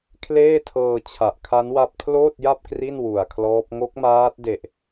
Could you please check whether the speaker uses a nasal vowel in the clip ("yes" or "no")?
no